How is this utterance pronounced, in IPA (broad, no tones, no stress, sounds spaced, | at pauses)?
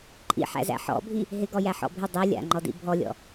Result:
ǃʼ ḭ ħ æ̰ z æ̰ ħ ɔ̰ bʱ i | ɦ ɪ ɡ ɔ j æ ħ ɔ̰ bʱ ɪ dˤ i lʲ a̰ ŋ͡ǃ ɔ d ḭ bʱ ɔ lʲ ɔ̰